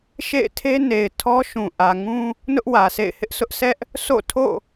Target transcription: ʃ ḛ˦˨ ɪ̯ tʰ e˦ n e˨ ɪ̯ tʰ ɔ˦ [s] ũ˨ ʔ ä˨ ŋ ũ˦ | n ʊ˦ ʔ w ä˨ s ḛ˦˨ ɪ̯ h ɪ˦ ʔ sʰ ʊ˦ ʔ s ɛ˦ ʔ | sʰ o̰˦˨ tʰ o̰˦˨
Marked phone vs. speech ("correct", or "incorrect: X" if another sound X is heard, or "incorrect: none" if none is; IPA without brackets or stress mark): incorrect: ʃ